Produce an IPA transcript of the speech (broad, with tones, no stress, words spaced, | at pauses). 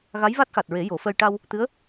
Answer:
ɣa˧˥jva˦˥t̚xa˨˩t̚ɹe˨˩˦ jo˨˩˦fəː˧j ʈa˧w | t̪ɨ˧˥ə̯